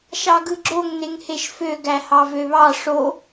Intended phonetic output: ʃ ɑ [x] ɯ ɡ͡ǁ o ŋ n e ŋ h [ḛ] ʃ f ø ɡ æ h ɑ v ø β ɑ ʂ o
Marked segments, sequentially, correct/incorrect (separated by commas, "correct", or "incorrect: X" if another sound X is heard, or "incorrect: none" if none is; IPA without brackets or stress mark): incorrect: ɡ, incorrect: e